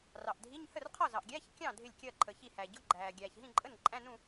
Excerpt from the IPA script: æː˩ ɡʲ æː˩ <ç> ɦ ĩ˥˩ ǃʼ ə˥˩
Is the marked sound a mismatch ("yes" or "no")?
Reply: no